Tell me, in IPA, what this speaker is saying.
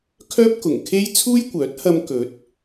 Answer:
kʰœː˥p̚kʊ˨˩ŋkʰe˥j t͡sʰuː˥jkʷœː˨˥t̚hɐ˧m kɵ˨˥t̚

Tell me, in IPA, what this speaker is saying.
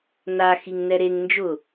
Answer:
na xiŋnɛɾeŋ nd͡ʒʊ

